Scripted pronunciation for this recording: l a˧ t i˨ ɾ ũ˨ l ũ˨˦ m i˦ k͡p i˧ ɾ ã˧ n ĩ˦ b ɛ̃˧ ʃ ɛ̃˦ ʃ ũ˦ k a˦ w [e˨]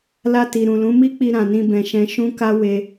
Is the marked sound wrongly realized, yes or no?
yes